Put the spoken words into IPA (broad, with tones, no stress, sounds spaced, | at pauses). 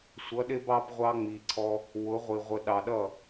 sʷ ʌ˨˦ ɗ ɪ˦ b ɑ˦ b ʁʷ ɑ˦ ŋ͡m i˨ ǀʰ ɔ˦ | w ʊ˨˦ ʁʷ i˨ ʁʷ ə˨ ɗ ɑ˨ ɗ ʌ˦˨